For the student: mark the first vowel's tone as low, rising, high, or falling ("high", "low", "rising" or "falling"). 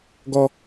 high